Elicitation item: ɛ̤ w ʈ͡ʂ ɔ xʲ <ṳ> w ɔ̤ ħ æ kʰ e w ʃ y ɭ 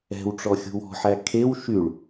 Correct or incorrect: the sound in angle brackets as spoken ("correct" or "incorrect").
correct